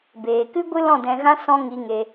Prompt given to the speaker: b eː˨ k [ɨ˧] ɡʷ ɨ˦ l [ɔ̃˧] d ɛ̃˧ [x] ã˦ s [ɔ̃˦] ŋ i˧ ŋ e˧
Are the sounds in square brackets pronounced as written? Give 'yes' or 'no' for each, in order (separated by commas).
no, no, no, yes